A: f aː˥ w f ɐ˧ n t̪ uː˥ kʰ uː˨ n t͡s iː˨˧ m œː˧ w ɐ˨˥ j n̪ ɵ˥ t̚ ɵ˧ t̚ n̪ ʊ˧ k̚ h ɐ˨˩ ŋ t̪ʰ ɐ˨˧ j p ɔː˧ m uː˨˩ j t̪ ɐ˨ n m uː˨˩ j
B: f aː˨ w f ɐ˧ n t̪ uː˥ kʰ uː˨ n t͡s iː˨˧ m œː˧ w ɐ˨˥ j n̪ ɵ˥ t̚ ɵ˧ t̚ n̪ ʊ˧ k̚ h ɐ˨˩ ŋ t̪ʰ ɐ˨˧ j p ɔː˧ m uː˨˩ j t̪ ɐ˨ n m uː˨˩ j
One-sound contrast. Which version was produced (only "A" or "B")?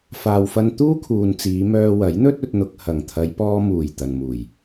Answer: B